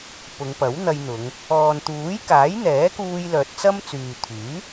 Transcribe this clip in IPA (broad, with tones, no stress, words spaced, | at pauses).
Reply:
pʊ˨˧ŋpɐ˨˥wn̪ɐ˧jn̪ʊ˨˧ŋ | ɔː˨n t̪uː˨˥jkaː˨˥jn̪ɛː˨˥kuː˧j lœː˨t̚t͡sɐ˥m t͡syː˨t̪ʰyː˨˥